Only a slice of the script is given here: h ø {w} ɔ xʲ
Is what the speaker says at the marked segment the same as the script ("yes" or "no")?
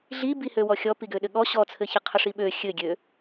yes